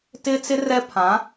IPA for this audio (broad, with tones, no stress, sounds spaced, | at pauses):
t ɪ˦ t͡s ɪ˦ r ɛ˦ pʰ ã˨˦